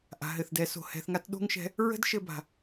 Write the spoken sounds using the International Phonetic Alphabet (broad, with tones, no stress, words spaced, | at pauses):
ʔa̤˩ɦɘ˩θdɛ˩˧so̤˩ hɛ̤˧θŋa˥t ɗo̤˥ŋʃɛ̤˧˥ | ɹə̤˥dʃɘ˧ba̤˩